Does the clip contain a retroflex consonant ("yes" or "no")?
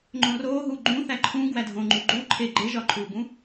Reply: no